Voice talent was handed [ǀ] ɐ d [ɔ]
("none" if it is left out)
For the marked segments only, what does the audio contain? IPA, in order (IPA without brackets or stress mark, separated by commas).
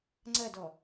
ŋ͡ǀ, ɔ